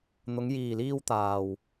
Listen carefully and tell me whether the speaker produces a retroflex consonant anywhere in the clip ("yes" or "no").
no